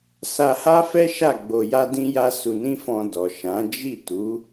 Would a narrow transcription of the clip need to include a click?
no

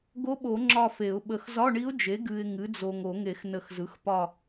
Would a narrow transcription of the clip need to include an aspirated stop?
no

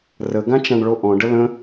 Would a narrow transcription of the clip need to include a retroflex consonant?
yes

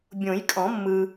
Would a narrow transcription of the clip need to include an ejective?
yes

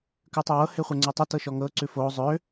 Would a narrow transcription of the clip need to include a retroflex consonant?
no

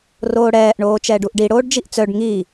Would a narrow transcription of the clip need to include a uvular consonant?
no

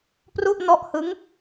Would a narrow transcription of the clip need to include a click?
no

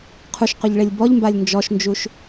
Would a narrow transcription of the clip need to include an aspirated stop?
yes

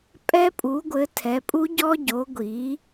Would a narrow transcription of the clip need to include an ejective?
yes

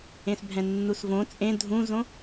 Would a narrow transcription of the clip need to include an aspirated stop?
no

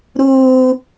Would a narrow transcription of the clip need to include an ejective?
no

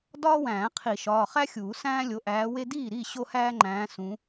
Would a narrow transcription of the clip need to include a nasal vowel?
yes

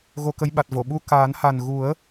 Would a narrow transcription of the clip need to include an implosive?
yes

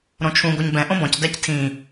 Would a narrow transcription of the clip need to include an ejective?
no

